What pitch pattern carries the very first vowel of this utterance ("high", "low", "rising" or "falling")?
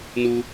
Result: high